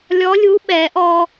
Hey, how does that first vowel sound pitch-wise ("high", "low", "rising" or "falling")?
rising